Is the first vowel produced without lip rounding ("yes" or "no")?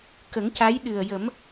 yes